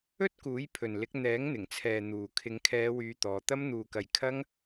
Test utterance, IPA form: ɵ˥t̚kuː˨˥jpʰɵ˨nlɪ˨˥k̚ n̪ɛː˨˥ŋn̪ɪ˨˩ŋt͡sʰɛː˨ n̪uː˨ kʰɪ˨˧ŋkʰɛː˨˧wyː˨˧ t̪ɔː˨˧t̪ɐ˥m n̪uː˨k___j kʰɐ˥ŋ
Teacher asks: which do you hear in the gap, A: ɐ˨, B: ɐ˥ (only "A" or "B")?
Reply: A